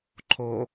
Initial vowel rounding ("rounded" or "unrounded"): rounded